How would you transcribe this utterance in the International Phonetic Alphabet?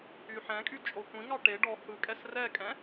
y ħ ɛ̃ kʼ y t͡ʃʼ o kʷ ĩ ŋ ɑ ʈ e ɖ ɔ h ɯ kʼ ɛ s r ɛ kʼ ɛ̃

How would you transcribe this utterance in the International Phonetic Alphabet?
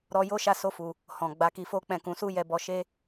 ɾ ɔ˨ j o˧ ʃ a˧ s o˧ f u˨ | h ɔ̃˨ ɡ͡b a˨˦ k i˧ f o˦ k͡p ɛ̃˦˨ k ũ˨˦ s u˦ j ɛ˧ b ɔ˧ ʃ e˦

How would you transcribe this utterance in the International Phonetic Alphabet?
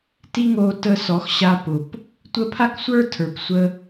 t i˦ ŋ o˧ t ə˧ s ɔ˨˦ x ɕ a˧ p ʊ˨ p | tʷ ə˦ pʰ a˦ k sʷ ə˞˦ tʰ ə˞˨ p sʷ ə˦

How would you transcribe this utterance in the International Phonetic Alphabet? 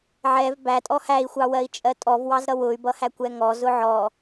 ʕ ɛ v b æ tʼ ɔ h æ i̯ xʷ ɑ w ɜ i̯ t͡ʃʼ ɜ tʼ ɔ v w ɑ z ɾ ʌ w ʊ y̯ b ʌ h æ kʷ ɛ ŋ ɔ z ʊ ʕ ɔ

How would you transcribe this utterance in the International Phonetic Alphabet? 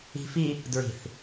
i̤ f i | d ɹ i̤ θ

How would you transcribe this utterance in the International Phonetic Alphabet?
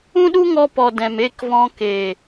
ũ˦ ɗ u˦ ŋ ɔ˧ p ɔ˨ d ɛ̃˨ m e˦˨ k v ɔ̃˧ k eː˨

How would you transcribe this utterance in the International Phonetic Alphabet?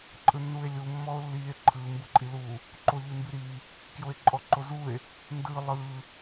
ǃʼ ɯ nː u e̯ lʲ u mː ɔ o̯ lː i e̯ ǃʰ ɯ m b ɯ ǃʼ i l u | ǃ o ʎ i m b i ɾ i | k j o e̯ ǃʼ ɔ ǃ o z u e̯ | n d ɯ lˠ ɯ

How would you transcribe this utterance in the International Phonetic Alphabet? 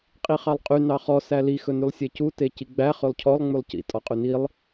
qʼ i χ ɑ lˠ qʼ y n ɑ χ ɔ s æ l i x ɵ n y lˠ sʲ e c u t e c i ɡ͡b æ χ ɵ lˠ cʰ ɔ lˠ ŋ͡m ʉ lˠ c ḭ tʼ ɔ qʼ ʉ n i lˠ

